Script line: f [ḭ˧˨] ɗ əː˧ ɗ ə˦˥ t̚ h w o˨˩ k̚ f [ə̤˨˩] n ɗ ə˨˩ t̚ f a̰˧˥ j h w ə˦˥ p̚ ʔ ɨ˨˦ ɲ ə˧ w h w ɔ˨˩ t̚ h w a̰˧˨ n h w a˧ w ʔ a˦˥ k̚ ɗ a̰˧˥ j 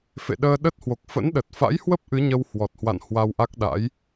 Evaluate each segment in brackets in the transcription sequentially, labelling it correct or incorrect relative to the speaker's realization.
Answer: incorrect, incorrect

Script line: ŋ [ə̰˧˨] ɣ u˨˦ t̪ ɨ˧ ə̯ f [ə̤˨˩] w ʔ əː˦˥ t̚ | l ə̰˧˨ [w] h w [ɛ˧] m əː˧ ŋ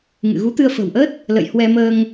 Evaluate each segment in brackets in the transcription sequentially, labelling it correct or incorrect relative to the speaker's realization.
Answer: incorrect, correct, incorrect, correct

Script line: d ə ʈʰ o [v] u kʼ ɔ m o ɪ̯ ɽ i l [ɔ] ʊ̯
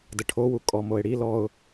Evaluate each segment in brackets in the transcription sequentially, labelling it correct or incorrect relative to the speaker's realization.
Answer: incorrect, correct

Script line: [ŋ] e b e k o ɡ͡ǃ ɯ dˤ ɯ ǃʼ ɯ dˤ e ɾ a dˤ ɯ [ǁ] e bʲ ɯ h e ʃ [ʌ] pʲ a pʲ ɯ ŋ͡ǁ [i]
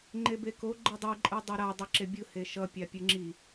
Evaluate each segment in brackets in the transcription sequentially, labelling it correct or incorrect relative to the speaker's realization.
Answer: incorrect, correct, correct, correct

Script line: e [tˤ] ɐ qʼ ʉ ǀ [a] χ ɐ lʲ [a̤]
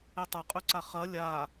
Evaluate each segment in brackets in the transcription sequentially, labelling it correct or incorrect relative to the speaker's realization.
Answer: correct, correct, incorrect

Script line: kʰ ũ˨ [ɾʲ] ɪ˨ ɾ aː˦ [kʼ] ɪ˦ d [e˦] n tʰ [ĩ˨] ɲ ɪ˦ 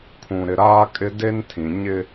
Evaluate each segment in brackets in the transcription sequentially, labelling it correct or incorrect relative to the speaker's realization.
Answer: incorrect, correct, correct, correct

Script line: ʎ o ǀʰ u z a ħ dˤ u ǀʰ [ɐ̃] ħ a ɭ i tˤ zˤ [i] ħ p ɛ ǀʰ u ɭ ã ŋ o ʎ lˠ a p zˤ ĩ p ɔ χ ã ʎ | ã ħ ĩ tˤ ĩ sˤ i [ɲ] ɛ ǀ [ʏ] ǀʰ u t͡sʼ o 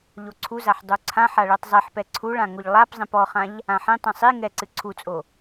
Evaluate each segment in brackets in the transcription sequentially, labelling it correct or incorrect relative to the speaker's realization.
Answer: incorrect, correct, incorrect, incorrect

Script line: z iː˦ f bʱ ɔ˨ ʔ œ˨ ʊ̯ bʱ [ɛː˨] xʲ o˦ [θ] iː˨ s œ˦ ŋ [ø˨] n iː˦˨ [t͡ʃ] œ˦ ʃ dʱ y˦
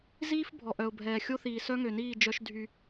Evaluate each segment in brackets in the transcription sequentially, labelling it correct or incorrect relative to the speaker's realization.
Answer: correct, correct, correct, incorrect

